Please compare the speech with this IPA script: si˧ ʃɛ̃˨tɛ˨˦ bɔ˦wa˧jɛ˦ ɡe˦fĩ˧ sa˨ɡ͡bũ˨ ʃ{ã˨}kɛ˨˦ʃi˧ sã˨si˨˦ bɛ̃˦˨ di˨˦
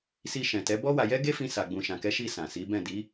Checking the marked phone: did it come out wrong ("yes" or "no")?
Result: no